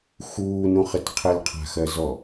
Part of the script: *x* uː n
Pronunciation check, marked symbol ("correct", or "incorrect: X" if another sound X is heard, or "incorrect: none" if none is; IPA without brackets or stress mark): correct